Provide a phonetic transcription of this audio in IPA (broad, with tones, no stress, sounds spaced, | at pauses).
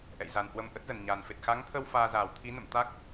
ʔ ɛ̰˧˨ j z a˨˩ n h w ə˧ m ʔ ə˦˥ t̚ z ə˧˩ n ɲ aː˨˩ n f e˨˩ t̚ x a˨˦ ŋ t̪ʰ ə˧ w f aː˧ z aː˧˩ w t̪ʰ i˨˦ n ə̰˧˨ m t̪ a˦˥ k̚